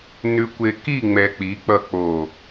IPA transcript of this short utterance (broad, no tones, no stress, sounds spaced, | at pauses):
n ʉ kʷ e k i ŋ͡m ɛ k͡p i k͡p ʌ k͡p o